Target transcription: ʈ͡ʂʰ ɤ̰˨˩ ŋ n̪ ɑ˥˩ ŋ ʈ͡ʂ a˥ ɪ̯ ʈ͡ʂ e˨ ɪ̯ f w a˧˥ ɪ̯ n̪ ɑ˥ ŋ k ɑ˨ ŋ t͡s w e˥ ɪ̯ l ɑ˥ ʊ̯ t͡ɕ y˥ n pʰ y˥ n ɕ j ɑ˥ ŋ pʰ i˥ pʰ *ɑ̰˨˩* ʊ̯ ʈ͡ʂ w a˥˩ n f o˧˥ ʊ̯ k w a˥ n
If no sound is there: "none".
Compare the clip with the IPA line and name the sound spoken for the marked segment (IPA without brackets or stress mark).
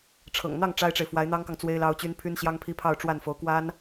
ɑ˥˧